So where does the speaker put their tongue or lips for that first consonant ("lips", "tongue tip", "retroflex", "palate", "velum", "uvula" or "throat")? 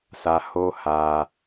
tongue tip